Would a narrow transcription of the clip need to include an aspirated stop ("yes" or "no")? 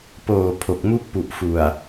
yes